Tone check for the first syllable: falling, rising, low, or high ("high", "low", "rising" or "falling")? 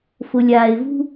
low